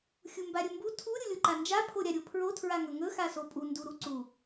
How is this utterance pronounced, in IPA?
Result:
xʲumbaɾʲɵmbu tʰu ɾʲulʲoǃand͡ʒa pʰoɾʲaɾʲopʰɹo tʰɹaŋɵŋɵ xasopʼu nduɾuǀu

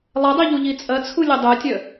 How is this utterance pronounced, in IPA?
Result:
lˠɐdˤi ʎuʎit͡sʼɐt͡sʰu lʲədˤœtʲœ

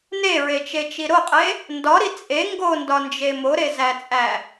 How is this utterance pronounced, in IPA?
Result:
neɹet͡ʃet͡ʃi ɾoqʼe | ndɒɾi t͡sʼe ŋɡondɒnd͡ʒe moɾezæt͡sʼæ

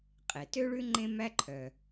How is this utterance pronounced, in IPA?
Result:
qʼe˩tø˥ɭʉ˥ ŋ͡ǃẽ˥mæ˥ǃʰœ˩

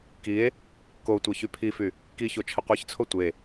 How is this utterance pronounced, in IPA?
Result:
kie̯ | kotʷe çypʰify | kiço t͡ʃʰəqʷiçt͡sʰo tʷe

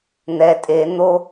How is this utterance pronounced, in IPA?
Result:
n̪ɛ tʼe n̪o

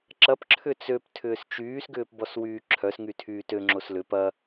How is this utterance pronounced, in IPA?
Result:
ǁɐpǁʰʏ t͡søp tʰʏːst͡ʃyːsɡʏːp bɔswyːǁʰœs ŋytʰyːtø ŋ͡ǁoslʏ pɐ

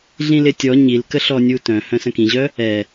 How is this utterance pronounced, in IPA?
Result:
ɮĩlɪtʲɔ ɲilkəɬɔnʲu tœ̃ hœ̃sə̃kĩʑœ | ɛ

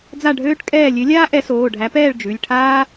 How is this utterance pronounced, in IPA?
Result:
d͡za˥˨ɖʱøː˥ʈkʼɛː˥˨ lʲø˨˥lʲaː˥ ʔɛ˨˥soː˩˧˩ɖʱæ˨˥pɛː˥˨ɭ d͡ʒʉ˩˧˩lʲʈʰaː˥

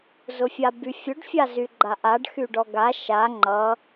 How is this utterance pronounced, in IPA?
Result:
zʊfʲabyfʲʊɖ fʲazyɡ͡ǃaʔaɖ xyɖɔɡa ʃa ŋ͡ǃʌ

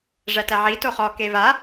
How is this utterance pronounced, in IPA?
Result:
ʐætæʕi toχɔ keva

